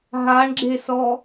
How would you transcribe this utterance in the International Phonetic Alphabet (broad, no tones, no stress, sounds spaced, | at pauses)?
ɦ a ɳ ɡ͡ǁ e s ɔ